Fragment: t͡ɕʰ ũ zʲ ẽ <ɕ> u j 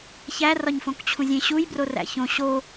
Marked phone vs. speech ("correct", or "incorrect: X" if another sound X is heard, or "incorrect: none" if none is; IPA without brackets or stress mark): correct